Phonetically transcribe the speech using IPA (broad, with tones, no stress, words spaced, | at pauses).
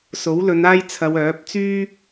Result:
so˨˥wlɵ˨˧n aː˥jt͡sʰɐ˨˧wœː˨˥p̚ t͡syː˥